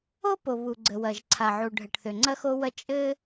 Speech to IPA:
o˥po˩ βu˩ɡ͡ǀə˩wɐ˩ʒ ǀʰa˩ʕu˩ɖʱɘ˩ʈθø˩ ŋ͡ǀɐ˥xo˥wɐ˥ t͡ʃʼɘ˥

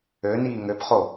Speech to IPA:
øniː ŋøpχo

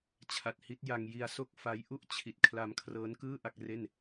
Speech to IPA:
t͡ɕʰa˨˩t̚hi˦˥t̚ja˧ŋ ji˧a̯so˥˩k̚fa˦˥j ʔu˥˩ʔt͡ɕʰi˨˩t̚ kʰla˧mkʰrɤː˦˥nkɯː˥˩ ʔa˥˩k̚ re˥˩n

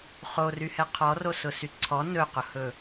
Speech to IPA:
χoryhɛ qʰɔrosʊsy ǀʰɔ nɵqʊhɵ

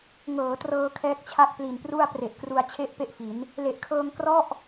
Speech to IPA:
ŋɤː˩˦trɤː˧ kʰɛː˦˥k̚t͡ɕʰa˥˩k̚pli˨˩npru˥˩a̯ pre˨˩ʔkru˧a̯t͡ɕʰe˥˩ʔ pe˥˩ʔfi˩˦n | le˨˩ʔkʰɤː˧ŋ krɔ˥˩ʔ

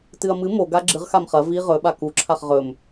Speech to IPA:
tɨɐ̯mɨ moɡa ɡ͡ǁɨʁxam χɐ vi ʁɵɓa kuǁʰaχ ʁɵm

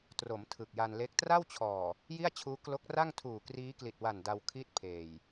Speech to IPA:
tro˩˦m tʰɯ˨˩k̚ja˧nle˦˥k̚ tra˥˩wt͡ɕʰɔː˨˩ | ji˥˩a̯t͡ɕʰuː˦˥ klo˦˥k̚ra˥˩ŋ tʰuː˨˩kriː˦˥ kli˨˩t̚wa˨˩n da˧w kʰiː˥˩t̚pʰeː˨˩j

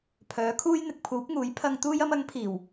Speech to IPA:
pʰœː˨˥kʰuː˥jn̪ɪ˨˥k̚ pʰuː˨˥p̚ŋuː˨˥j pʰɐ˧ŋ t̪uː˥jɐ˥m ɐ˨˥ŋpʰiː˨˩w

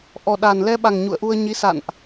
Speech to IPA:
ʔɔ˨˩ɗa˨˩nlɛ˧ɓa˨˩ŋ ɲṵ˧˨ə̯ʔu˧ə̯ɲi˨˦ sa̰˧˨nʔ

